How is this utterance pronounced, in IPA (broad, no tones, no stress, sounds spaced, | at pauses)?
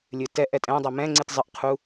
lʲ ɨ t ɛ ʔ ɛ tʼ ɛ̃ dˤ ɛ m ɛ̃ ŋ͡ǀ i t zˤ ɨ ʔ qʰ u